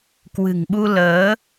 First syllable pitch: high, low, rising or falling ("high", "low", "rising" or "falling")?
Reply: low